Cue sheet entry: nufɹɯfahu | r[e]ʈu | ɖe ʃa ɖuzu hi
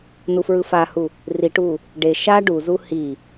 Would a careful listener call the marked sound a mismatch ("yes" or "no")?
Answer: yes